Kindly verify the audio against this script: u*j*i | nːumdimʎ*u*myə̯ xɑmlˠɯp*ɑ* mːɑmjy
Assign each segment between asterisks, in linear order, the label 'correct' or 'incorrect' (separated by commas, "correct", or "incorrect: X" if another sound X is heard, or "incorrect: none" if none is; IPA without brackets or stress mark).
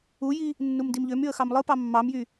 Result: correct, incorrect: ø, correct